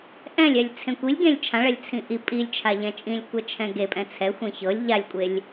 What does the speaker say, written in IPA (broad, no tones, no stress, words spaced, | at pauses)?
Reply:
ʔɛ̃lʲɛlʲ t͡sʰẽkʷilʲɡẽlʲ t͡ʃʰãɭɛlʲ t͡sʰĩʔi pʼilʲt͡ʃʰa ʎɛ̃t͡ʃʼĩlʲkʷɛ t͡ʃʰɛ̃ɡepʼɛ̃ t͡sʰɛ xʷẽçɤlʲ ʎalʲkʷʼelʲ